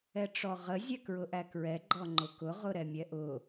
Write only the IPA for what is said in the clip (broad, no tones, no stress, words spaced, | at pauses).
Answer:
ɛʈ͡ʂɔʁə zʲɛkɹʊʔækɹɛ ɡ͡ǃɔŋ͡ǃʊkʊ ʁʊɾɛmʲɛʔʊ